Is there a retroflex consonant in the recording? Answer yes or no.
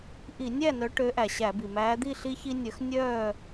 yes